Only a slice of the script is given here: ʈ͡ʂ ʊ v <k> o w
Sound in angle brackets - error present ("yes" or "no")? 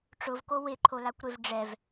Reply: no